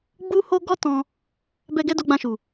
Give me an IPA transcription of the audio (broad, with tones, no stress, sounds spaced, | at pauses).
ɡ͡b u˦ h o˦ ɡ ɔ˦ t ɔ̃˧ | b ɛ˦ ɡ ɛ˦ d o˧ ɡ͡b ã˧ ʃ u˨